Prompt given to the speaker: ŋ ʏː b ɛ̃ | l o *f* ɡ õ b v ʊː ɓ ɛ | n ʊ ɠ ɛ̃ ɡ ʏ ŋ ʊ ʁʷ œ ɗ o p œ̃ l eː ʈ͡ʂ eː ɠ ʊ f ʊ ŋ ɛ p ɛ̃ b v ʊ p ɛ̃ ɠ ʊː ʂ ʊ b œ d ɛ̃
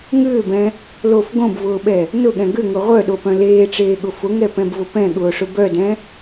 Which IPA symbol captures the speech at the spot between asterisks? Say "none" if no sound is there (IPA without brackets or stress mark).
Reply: f